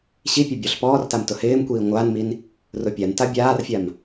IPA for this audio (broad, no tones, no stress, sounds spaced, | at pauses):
ɕ i pʲ o bʲ ɔ ɬ p ɔː r t a m t ʊ h ɪː m kʷ iː ŋʷ aː n m i n | r ʊ pʲ a n t a bʲ aː r fʲ a m